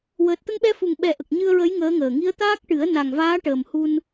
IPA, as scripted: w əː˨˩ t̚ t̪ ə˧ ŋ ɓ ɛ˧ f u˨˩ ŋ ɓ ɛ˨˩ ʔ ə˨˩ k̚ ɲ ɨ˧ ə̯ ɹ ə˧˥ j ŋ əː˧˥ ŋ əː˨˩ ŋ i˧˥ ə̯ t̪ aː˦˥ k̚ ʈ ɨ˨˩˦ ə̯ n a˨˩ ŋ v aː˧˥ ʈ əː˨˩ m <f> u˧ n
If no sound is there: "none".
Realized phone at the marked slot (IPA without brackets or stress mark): h